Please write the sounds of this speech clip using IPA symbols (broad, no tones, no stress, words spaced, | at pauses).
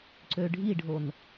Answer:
ǀøɖʱiɖʱon